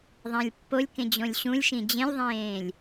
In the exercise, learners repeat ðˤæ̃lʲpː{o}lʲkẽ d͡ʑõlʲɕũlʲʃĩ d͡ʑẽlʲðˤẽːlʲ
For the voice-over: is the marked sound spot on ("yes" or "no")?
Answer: yes